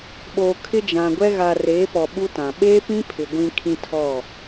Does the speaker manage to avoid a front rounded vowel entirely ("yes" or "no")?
yes